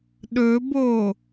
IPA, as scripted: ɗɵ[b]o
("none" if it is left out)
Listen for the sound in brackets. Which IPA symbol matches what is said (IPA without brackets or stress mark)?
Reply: b